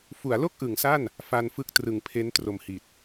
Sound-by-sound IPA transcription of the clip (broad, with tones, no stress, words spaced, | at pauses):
fu˩˦a̯lo˥˩k̚ʔɯ˩˦ŋ sa˥˩n | fa˧nfɯ˦˥k̚trɯ˨˩ŋpʰe˦˥n tro˨˩mhi˨˩t̚